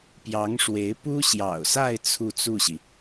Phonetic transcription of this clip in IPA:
pjɑ˧˥ŋʂwe˧˥ɪ̯ pu˥ɕjɑ̰˨˩ʊ̯sa˥˧ɪ̯ t͡sʰu˥˧t͡su˥˩ɕi˩

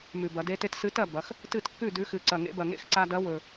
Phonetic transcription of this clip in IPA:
mʉ˨˩bɐ˩˧ de˧te˧t sɨ˨˥tɐ˥˩ bɐ˩˧x | tɨ˥˩tkːʉ˥˩ dʉ˨˥xɨ˨˩ǀɐ˨˩ŋḛ˨˥ bɐ˨˩ŋḛ˥˩x ǀa˧dɐ˨˥wɵ˨˩

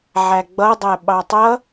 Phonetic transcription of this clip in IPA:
ʕæɡ͡bʌdˤæ ɓɑtˤʌ

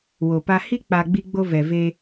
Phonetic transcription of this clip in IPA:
wo˨pa˦ hi˦k͡pa˨ ɡ͡bi˦ɡ͡bo˦ vɛ˨ve˦

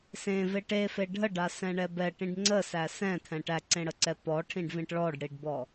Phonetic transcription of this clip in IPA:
sẽve ʈefe ɖʱəɖasɛ̃ɳɛ bɛʈĩɖ ŋ͡ǀəsæ sɛ̃t̪ʰɛ̃ ʈæǀẽɽəǀɛ pɔʈʰĩɖvĩʈ ɭɔɖɽiɖbɔ

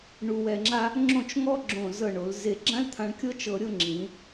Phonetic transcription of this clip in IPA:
ɳu˧wɛ˧ŋ͡ǁa˥ | ŋ͡ǁõ˥˧t͡ʃŋɔ˥ ɡ͡ǁõ˧˩zɤ˧˩ɳo˩˧l ze˧˩ɡ͡ǁã˥l t̪ʰã˧ɳkʲɤ˥t͡ʃɤ˧ɾʲɤ˥˧ ŋ͡ǁĩ˩˧

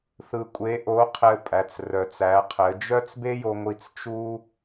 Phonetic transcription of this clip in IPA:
θɯ˧kʷʼe˧˥ʔo˧˥ qʰɘ˧ pʼæ˩˧t͡srœ˩t͡sæ˩˧qʰɘ˩˧ d͡ʒœ˥t͡sbe˥jo˧ ŋʷi˧t͡st͡ʃu˥

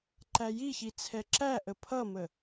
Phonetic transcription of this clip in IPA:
ǃæjiçi t͡sʰɛǁæʔə pʰʌmə

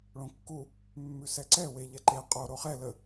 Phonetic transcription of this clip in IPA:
ɭõkːu | mːʉsɛǀɛ we ʎɛǃe qʼo ɾoχɛ lə

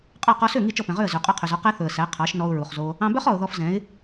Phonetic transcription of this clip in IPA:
qʼɑ˥˩ qɔ˧sø˥˩ ŋi˥˩t͡ʃɔ˥˩pɛ̃˩ʁø˥˩ə̯ zø˩qʼɔ˧qʰø˩zɔ˧ qɛ˥θɵ˩ə̯sæ˩˥ qʰɑ˩˥ʃnɔ˧ʊ̯ ɹu˩χzo˧ | ɑ̃˧bœ˥χ ɔ˩ʊ̯ðɔ˧fzɛ̃˩˥ɪ̯

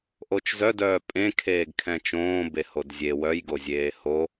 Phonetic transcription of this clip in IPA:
ʔot͡ʃzœdœː pʼẽ kʰeːɡkʰɛ̃t͡ʃõː behodzʲe wœjɡozʲeː ho

